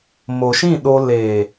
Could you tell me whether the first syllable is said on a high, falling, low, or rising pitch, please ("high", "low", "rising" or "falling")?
low